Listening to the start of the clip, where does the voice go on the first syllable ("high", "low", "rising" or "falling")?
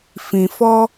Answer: low